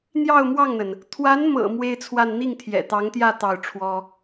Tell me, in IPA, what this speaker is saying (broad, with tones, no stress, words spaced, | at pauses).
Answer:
n̪jɑ˥˧ʊ̯mwɑ˥˩ŋn̪ə˩n | t̪ʰwa˧˥nmɤ̰˨˩ mwe˥ɪ̯t͡sʰwa˥˧n n̪i˥˩ŋt̪ʰjɛ̰˨˩t̪ɑ˧˥ŋt̪jä˥˧ t̪ɑ˥˩ʊ̯ʈ͡ʂʰwɔ˥